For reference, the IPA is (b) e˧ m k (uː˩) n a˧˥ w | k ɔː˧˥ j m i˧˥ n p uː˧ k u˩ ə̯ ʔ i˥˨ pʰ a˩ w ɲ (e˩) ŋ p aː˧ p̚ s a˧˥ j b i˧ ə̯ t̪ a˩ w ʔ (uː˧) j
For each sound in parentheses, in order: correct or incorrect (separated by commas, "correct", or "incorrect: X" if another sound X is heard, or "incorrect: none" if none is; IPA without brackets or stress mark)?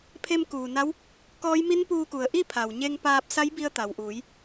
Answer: incorrect: pʰ, correct, incorrect: e˧, incorrect: uː˩˧